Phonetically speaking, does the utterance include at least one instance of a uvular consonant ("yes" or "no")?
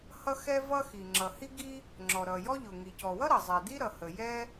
no